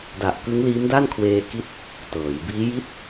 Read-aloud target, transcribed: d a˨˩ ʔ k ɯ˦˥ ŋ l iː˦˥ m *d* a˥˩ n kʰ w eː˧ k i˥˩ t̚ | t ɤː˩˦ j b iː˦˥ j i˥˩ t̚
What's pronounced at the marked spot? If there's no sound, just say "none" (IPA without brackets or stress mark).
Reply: d